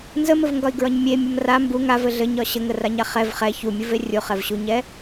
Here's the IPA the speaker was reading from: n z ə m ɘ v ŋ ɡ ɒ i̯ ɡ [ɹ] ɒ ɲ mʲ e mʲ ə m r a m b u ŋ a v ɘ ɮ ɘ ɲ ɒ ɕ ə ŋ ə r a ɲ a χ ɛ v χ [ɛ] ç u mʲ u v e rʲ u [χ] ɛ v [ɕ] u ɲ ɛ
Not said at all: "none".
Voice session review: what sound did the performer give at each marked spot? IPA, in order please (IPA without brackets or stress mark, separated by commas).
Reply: ɹ, ɛ, χ, ɕ